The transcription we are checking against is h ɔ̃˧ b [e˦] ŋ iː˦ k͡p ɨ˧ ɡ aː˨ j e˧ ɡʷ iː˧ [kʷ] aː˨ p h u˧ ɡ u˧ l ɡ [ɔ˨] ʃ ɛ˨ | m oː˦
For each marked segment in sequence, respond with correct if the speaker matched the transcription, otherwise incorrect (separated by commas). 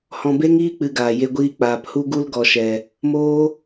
correct, incorrect, correct